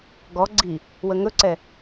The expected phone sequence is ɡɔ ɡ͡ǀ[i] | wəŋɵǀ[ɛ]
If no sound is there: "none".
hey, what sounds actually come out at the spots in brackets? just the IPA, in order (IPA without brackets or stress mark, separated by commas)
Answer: i, ɛ